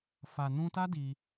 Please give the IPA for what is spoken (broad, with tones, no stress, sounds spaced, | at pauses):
f a˨ n ũ˧ t a˦ d i˧